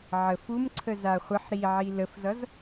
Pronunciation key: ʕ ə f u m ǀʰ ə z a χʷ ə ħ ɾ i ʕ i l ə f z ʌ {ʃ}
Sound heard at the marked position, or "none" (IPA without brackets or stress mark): z